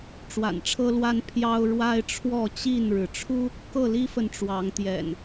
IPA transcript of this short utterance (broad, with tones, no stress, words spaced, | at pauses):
ʈ͡ʂwa̰˨˩nʈ͡ʂʰɤ˦lwa˦n pʰjɑ˦ʊ̯ ɻwa˦ɪ̯ʈ͡ʂʰwɔ˥˨t͡ɕi˥˨nɻɻ̩˩ ʈ͡ʂʰu˦ | kɤ˥˨li˦fə˨n ʈ͡ʂwɑ˨˦ŋt̪jɛ̰˨˩n